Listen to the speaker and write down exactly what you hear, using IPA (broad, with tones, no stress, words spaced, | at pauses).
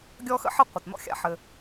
ɡʲɔ˥xə̰˥ħə˥ qʷə˩t nɔ̰˥xʲa̰˧ħɘ˩